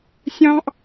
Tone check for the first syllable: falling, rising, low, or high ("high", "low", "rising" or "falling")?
high